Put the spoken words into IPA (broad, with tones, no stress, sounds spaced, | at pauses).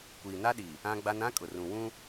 kʷ iː˨ n a˦ ɗ i˨ | ã˦ ɡ͡b a˦ n ã˦ kʼ ʊ˨ r ũ˨ w ũ˦